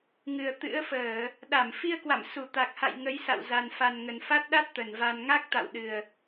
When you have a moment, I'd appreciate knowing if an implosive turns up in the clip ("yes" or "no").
yes